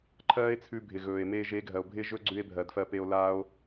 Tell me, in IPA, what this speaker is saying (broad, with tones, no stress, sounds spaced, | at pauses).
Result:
ǃʰ ɜː˦ e̯ t͡sʰ ʉ˧ bʱ ɪ˨ ɣ ɵː˨ e̯ m eː˧ ʒ e˨˦ ɡʱ ɜ˨ o̯ bʱ ɪː˦ ʒ ɵ˦ ɡ͡ǀ ʉ˧ e̯ bʱ ɜ˨ d f ɜ˧ p e˧ o̯ l aː˦ o̯